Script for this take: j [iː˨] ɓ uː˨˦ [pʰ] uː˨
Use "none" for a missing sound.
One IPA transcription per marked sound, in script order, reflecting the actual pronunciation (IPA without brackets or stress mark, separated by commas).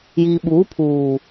iː˨, pʰ